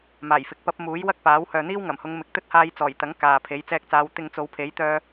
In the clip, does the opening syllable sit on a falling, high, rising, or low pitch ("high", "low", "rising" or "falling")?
low